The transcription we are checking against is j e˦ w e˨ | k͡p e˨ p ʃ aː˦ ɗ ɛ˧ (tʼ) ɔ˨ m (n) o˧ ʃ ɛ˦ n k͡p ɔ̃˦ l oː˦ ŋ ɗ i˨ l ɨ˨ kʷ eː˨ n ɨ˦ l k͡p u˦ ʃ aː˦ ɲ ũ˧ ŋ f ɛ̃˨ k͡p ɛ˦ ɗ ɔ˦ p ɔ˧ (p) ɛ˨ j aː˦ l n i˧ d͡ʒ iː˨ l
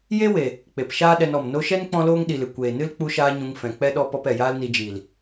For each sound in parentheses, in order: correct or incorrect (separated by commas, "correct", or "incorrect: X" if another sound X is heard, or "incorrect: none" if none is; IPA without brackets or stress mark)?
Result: incorrect: n, correct, correct